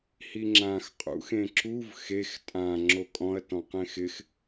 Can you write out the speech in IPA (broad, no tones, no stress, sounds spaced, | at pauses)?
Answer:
h i ŋ͡ǁ ã x qʼ ṵ x ẽ ǁ u v x e x tʼ ã ŋ͡ǁ o kʼ ɔ̃ ɐ̯ t ɔ̃ q ẽ x ɪ x